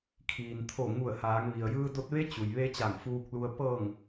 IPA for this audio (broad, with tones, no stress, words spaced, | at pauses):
kʰiː˩nt̪ʰo˧˩ ŋu˧˩ə̯haː˩˧ŋ ʋi˩ə̯jɯː˧do˧t̚ʋe˧˥ t͡ɕu˩jʋe˧˥ t͡ɕa˧˩ŋfuː˧k̚lu˧ə̯ pɤː˧˩ŋ